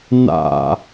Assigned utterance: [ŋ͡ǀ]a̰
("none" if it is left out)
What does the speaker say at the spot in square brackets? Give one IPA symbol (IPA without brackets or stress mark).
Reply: n